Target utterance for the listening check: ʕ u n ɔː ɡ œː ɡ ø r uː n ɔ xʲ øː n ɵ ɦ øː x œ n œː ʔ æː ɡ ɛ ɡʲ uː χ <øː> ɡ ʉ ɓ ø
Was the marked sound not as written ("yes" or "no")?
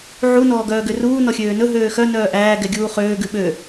no